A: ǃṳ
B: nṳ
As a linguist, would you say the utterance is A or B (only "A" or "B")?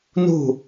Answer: B